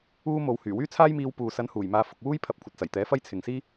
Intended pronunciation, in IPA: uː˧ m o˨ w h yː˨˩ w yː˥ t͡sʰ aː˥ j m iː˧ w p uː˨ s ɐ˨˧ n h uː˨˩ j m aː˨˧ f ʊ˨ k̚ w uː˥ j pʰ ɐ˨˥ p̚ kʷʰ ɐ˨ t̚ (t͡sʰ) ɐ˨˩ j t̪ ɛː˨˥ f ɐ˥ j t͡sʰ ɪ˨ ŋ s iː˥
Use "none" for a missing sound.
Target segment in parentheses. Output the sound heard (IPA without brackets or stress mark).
t͡s